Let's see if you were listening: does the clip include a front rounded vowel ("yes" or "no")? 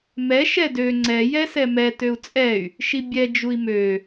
yes